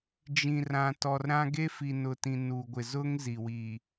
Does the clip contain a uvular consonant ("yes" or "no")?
no